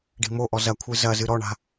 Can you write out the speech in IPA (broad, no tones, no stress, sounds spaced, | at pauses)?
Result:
ɖ i̤ m o ʔ ɔ z ɐ kʷʰ ɨ z ɐ z ɨ ɾ ɔ ɳ a̤